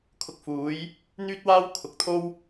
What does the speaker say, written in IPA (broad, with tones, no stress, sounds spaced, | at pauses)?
kʰ ʊ˧ k̚ f uː˨˥ j | n̪ yː˥ t̚ w aː˥ w kʰ ʊ˨ k̚ t̪ʰ o˥ w